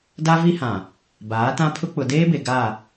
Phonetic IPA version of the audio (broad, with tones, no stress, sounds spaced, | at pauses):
d a˦ v i˦ h ã˨ | b aː˨˦ t ã˦ pʰ ʊ˦ k͡p ʊ˨ d eː˦ b e˨ ɡ a˦˨